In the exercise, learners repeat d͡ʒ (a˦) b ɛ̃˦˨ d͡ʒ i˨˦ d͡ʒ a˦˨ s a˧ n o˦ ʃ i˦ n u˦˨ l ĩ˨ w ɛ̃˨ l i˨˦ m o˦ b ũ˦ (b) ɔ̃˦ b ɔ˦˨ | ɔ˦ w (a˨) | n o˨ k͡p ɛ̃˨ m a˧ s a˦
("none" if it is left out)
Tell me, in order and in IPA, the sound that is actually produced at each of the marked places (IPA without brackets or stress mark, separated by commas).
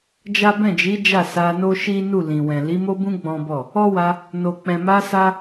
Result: a˦, ɡ͡b, a˧